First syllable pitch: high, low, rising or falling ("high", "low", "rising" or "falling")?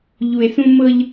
low